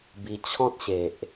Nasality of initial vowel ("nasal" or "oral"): oral